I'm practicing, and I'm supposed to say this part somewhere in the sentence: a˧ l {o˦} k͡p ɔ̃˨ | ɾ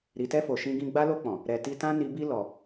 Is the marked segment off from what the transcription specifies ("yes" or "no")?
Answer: yes